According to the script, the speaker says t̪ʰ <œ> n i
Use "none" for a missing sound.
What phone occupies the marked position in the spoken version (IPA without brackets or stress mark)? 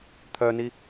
œ